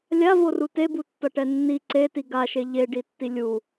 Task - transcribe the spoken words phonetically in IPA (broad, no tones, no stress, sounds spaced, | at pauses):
lʲ a v o r u t e b u tː ʌ ʈ ɛ nː i ǀ e t i ɡ a ʃ e ʎ e ɖ i tː i lʲ u